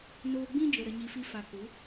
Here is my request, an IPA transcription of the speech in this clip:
n oː˧ ɡ͡b ĩ˦ d͡ʒ ə˨ ɾ ə˧ ɲ i˧ f i˦ f a˧ k u˨˦

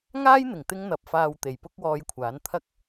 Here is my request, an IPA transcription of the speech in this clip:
ŋ aː˥ j n̪ ɪ˨˩ ŋ t̪ ɪ˧ ŋ n̪ ɐ˨ p̚ f aː˨ w t̪ e˨˩ j p ʊ˥ k̚ w ɔː˧ j kʷʰ aː˨˥ n t̪ʰ ɐ˥ k̚

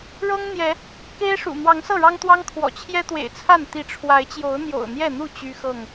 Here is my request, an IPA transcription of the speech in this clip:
ɻ ɤ˦ ŋ n̪ j ɛ˨˦ | k e˦ ɪ̯ ʂ ṵ˨˩ n̪ w ɑ˨˦ ŋ s ɤ˥˨ ɻ ɑ˦ ŋ t̪ w ɑ˦ ŋ kʰ w ɔ̰˨˩ t͡ɕʰ j ɛ˦ t̪ w ḛ˨˩ ɪ̯ t͡sʰ a˥˨ n t̪ i˨˦ ʈ͡ʂʰ w a˨˦ ɪ̯ t͡ɕ j o˨˦ ʊ̯ n̪ j o̰˨˩ ʊ̯ n̪ j ɛ˥˨ n̪ u˥˨ t͡ɕ y˦ x ɤ˥˨ ŋ

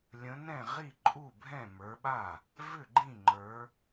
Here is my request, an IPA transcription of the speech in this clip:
lʲ ə̃˨˦ n ɛ̃˥˩ ʁ i˥˩ ǃʼ u˥˩ bʱ ɛ̃˥˩ m ə˞˨˦ ɓ a˥˩ | v ʏ˥˩ ɡ͡ǃ ĩ˥˩ ŋ͡ǃ ə˞˨˦

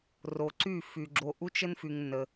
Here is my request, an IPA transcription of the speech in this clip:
r o˧ ǀ y˦˨ f y˧ ɡ͡ǁ o˧ ʔ u˦ t͡ʃ ə˦ n f y˧ ŋ nː ə˧

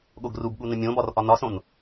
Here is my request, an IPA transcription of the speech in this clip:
ɠ o ɡ r u b ɠ u n ə̃ mʲ õ b ɒ r ʔ ɒ n ɒ s õ n

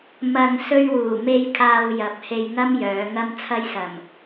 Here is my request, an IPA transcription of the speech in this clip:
m ɐ˨ ŋ s ɵ˧ ɥ w uː˨˩ m e˧ j kʰ aː˨ w j ɐ˨ p̚ h e˧ j ŋ ɐ˥ m j œː˨˧ ŋ ɐ˧ m t͡sʰ ɐ˧ j s ɐ˨˩ m

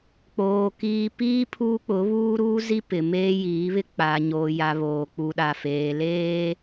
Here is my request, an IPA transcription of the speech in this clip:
k͡p oː˨ k iː˦ p iː˦ pʰ uː˦ k͡p ʊ˨˦ β uː˦ ɾ uː˦ z i˦ p ɪ˨ m eː˦ j iː˨˦ β ɪ˦ k͡p a˨ ɲ oː˨ j a˨ β oː˨ k͡p u˨ ɗ a˨ f eː˨ l eː˦

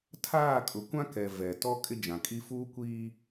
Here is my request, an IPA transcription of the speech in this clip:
tʰ aː˦˨ kʼ ʊ˨ kʷ ã˦ k ɛ˨ v ɛ˨ t ɔ˦ kʼ ɪ˦ d͡ʒ ã˨ kʼ i˦ f uː˦ kʷ iː˦

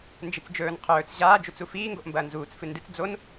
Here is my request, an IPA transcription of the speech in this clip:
n d͡ʒ ɨ t͡s d͡ʒ ɵː n qʰ ɵː t͡s ʑ aː d͡ʒ u t͡s u f iː ŋ ɡ o ʔ m b ɐː n z uː t͡s f ɨ n d ɨ t͡s d͡z o n

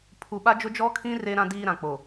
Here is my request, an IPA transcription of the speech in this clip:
pʰ u˨ ɓ a˦ d͡ʒ ʊ˦ d͡ʒ ɔ˦ kʰ ĩ˦ r e˦ ɾ ã˦ d iː˦ ɾ ã˨ k͡p o˨

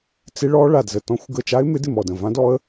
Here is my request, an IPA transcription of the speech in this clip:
t͡s ɪ˧˥ ɭ ɔ˧˥ ɭ a˧˩ d z ə˧˩ t ɔ̃˧˥ xʷ ɡ ə˧˩ t͡ʃ a˧˥ ɪ̯ m ɪ˧˥ d ɪ˧˩ m ɔ˧˩ d ə̃˧˩ v ã˧˥ d ɔ˧˥ ə̯

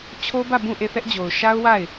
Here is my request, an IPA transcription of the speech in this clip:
t͡ɕʰ o˦ b ä˦˨ b ũ˦˨ ʔ e˦˨ θ ɛ˦ ʔ d͡ʑ o˨ ʊ̯ ʃ a˦ ʊ̯ w a˦˨ ɪ̯

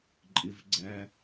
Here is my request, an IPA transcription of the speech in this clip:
ǃʼ ɪ v ɡ͡ǀ æ

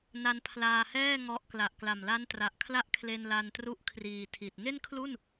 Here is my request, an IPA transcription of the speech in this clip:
n a˦˥ n pʰ l aː˧ h ɛː˥˩ ŋ ɔ˦˥ ʔ k l a˨˩ ʔ k l a˨˩ m l a˦˥ n t r a˨˩ ʔ kʰ l a˥˩ ʔ kʰ l e˧ n l a˧ n t r u˦˥ ʔ kʰ r iː˨˩ tʰ i˨˩ t̚ ŋ e˥˩ n kʰ l u˥˩ n

